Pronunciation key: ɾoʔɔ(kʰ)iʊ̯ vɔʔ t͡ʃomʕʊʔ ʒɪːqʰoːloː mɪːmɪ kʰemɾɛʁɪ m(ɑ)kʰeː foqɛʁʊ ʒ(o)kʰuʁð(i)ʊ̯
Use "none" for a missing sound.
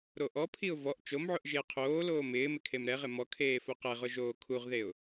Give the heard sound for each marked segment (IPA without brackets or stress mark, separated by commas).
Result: pʰ, ɔ, oː, e